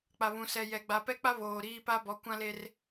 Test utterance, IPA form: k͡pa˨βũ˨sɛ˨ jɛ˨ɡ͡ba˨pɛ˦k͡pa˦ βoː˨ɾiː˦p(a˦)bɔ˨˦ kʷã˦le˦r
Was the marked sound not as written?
no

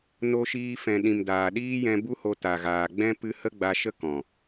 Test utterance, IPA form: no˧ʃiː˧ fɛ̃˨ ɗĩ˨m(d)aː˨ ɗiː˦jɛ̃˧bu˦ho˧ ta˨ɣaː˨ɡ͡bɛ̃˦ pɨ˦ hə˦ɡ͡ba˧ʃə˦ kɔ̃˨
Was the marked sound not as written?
no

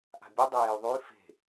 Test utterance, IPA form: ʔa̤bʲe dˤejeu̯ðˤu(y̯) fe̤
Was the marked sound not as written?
no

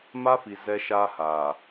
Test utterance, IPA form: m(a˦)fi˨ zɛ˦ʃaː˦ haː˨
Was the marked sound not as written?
no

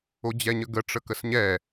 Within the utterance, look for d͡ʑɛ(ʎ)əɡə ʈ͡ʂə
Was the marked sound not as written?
yes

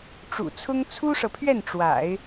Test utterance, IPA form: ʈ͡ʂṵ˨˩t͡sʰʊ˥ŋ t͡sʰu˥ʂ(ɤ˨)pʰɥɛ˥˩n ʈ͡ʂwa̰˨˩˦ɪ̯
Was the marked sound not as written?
no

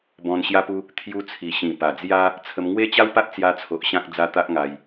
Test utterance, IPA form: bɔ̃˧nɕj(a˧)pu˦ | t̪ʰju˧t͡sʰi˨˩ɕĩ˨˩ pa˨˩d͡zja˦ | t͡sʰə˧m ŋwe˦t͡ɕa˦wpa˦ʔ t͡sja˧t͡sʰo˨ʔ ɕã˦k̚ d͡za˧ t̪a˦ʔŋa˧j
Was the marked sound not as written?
yes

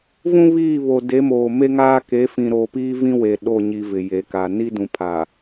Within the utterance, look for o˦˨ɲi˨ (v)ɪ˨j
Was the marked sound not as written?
no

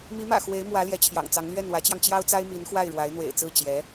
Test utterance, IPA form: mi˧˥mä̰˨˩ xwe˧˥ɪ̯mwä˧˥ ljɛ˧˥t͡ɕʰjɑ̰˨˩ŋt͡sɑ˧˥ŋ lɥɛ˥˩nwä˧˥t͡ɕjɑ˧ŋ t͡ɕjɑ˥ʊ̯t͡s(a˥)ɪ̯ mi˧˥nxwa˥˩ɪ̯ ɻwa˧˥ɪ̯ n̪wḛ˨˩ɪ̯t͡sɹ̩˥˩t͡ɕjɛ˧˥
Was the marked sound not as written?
no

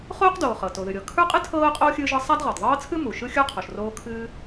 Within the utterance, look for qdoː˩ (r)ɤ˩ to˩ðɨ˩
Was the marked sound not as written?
yes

